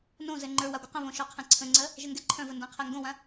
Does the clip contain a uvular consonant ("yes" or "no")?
yes